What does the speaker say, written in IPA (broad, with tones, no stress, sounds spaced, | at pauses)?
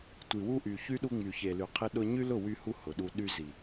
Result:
tʷ i˨ w u˦ ʔ y˨ ç y˦ ɗ u˧ ŋ͡m y˨ ç e˨ l y˨ qʰ e˦ ɗ ʊ˦ ɲ y˦ l ʊ˦˨ w y˧ h u˧ h ʊ˨ ɗ u˧ ɗ y˧ z i˨